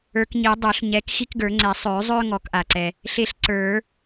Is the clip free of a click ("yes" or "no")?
no